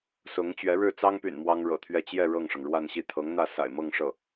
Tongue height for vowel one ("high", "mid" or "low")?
high